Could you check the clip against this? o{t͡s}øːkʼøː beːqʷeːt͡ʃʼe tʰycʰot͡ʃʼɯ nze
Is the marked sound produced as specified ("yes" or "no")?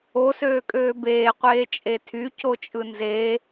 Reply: no